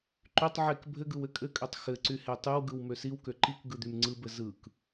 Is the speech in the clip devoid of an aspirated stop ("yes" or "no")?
yes